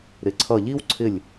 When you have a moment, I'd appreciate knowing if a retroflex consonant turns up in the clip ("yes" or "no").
no